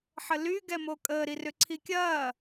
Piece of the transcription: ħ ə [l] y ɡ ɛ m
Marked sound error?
no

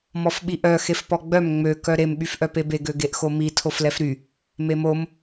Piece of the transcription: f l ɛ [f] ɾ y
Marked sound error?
no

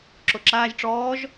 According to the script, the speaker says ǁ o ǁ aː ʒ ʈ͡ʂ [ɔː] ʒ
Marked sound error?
no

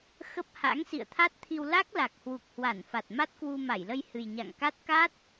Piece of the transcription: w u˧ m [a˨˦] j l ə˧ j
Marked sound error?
yes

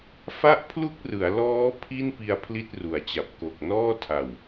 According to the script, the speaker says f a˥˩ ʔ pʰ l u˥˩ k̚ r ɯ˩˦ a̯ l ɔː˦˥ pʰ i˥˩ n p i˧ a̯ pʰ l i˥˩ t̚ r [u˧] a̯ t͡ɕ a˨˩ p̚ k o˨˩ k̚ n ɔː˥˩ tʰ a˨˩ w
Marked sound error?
yes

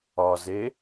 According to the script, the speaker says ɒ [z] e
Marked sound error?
no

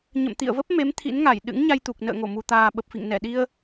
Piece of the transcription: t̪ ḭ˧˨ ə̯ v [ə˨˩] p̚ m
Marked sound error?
yes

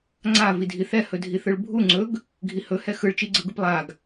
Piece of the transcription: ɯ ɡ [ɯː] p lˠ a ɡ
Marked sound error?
yes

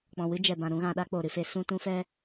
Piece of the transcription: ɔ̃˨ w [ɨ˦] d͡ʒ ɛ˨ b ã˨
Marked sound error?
no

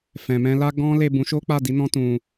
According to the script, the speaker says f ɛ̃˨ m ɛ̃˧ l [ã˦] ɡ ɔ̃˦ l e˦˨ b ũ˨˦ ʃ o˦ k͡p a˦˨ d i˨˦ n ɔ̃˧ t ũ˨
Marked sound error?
yes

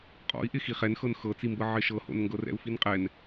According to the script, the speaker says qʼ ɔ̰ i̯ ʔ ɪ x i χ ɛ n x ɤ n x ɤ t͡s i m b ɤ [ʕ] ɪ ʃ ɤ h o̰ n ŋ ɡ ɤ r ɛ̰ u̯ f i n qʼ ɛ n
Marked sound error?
no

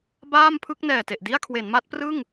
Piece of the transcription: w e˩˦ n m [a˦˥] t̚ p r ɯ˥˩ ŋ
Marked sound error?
no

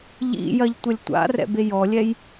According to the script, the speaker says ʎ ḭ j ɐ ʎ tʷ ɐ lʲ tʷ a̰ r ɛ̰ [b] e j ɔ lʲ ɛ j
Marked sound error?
no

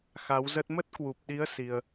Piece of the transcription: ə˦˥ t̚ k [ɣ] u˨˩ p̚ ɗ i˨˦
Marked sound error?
yes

